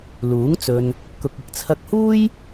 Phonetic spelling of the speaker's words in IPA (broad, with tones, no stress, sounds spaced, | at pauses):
l uː˨˥ ŋ t͡s ɵ˧ n | k ʊ˨ k̚ ɪ˧ k̚ t͡sʰ ɐ˧ k̚ h uː˥ j